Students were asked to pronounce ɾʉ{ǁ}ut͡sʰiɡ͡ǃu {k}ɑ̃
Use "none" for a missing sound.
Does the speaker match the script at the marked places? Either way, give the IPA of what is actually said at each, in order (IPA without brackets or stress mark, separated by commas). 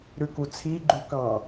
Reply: k, k